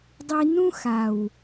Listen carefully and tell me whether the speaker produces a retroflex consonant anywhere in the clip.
no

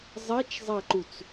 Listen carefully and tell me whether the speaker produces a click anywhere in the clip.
yes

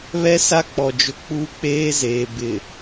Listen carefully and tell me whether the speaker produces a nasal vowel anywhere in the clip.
no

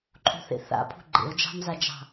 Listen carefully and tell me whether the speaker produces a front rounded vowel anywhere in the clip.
no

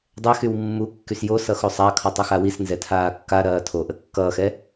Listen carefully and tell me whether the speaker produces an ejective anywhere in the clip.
no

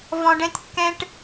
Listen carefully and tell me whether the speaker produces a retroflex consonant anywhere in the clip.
yes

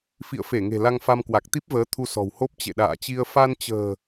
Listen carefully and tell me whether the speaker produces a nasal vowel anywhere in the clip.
no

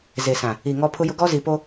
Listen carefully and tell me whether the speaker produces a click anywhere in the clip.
no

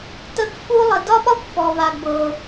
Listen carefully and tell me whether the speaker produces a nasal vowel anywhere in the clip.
no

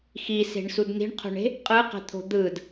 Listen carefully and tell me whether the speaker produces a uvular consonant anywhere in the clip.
yes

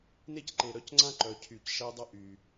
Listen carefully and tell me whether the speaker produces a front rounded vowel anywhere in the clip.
yes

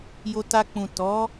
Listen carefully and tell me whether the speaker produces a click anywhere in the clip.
no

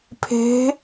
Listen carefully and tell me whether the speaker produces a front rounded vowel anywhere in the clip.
no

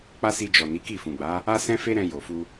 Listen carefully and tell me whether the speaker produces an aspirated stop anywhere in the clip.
no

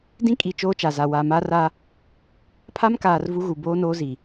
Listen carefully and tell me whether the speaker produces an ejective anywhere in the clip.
yes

